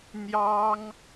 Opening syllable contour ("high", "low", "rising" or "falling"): high